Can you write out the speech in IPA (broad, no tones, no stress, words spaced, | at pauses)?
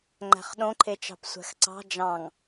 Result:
ŋ͡ǃæ̤χɗõǃʰet͡ʃɑ̤p sʷæ̤xǀɑ̤ d͡ʒɑ̃ŋ